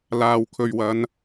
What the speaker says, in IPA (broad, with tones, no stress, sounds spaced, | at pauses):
l aː˨ w kʰ ɵ˨ ɥ w ɐ˨˧ n